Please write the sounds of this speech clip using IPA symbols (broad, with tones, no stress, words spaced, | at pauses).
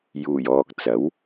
juː˨˩jɔː˨k̚ t͡sɐ˨˥w